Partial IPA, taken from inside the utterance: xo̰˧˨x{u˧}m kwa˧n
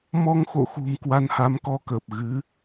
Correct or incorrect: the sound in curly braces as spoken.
incorrect: ṳ˨˩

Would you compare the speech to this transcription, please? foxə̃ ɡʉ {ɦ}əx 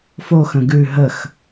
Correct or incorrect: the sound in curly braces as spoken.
correct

